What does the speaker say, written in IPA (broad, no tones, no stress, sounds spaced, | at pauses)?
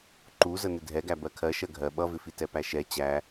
ǃ u z ə n ɪ dʱ ɛ ɡ æ b ɜ kʰ ɜ ʃ ɜ ɡʱ ɜ ɓ ʌ v ɪ f i t ɛ p æ ʃ ɛ t͡ɕ æ